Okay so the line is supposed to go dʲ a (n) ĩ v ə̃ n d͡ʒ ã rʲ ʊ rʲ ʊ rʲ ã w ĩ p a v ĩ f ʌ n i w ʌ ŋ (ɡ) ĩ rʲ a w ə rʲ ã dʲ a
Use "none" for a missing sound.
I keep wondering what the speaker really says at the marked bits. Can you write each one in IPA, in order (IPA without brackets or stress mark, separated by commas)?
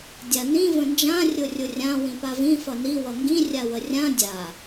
n, ɡ